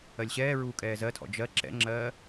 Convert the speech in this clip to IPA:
ɜlʲɕɛːɹuː kʼɛːzɜtʰɔ̰ d͡ʒɜ ǁɛ̰ŋ͡ǁɜː

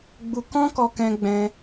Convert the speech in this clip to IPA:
ɡ͡bu˧ kɔ̃˦kɔ˧ kɛ̃˧ɡ͡bɛ̃˧

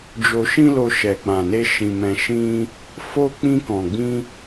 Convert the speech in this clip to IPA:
d͡ʒo˧ʃĩ˦lo˧ ʃɛ˨k͡pã˨ne˧ ʃĩ˧mɛ̃˧ʃĩ˦ | fo˧ k͡pĩ˧kɔ̃˨ɡ͡bĩ˧

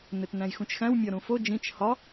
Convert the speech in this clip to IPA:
netnæ̃jxũt͡ʃxæ̃w mʲɒɾũfo d͡ʒĩt͡ʃ hɒ

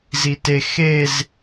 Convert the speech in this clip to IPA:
zite xez

